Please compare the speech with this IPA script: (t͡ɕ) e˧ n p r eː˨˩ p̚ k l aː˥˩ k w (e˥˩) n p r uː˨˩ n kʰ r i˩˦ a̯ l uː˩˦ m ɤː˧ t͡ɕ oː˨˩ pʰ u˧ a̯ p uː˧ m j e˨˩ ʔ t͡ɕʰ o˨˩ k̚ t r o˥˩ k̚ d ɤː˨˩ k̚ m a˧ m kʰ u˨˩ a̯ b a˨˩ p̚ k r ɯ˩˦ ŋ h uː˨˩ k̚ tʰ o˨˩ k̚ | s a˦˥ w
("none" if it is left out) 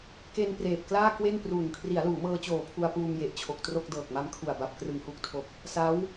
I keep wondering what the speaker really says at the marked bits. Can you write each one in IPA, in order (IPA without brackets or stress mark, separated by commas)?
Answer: k, e˥˩